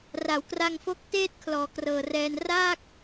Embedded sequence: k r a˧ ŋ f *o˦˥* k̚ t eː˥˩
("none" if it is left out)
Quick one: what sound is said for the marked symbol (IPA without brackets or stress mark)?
o˦˥